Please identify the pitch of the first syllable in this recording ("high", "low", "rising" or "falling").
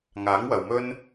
rising